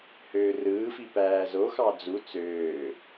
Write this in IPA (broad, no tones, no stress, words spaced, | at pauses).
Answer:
høːrɯːfi pæːzoxɑ d͡zu t͡søː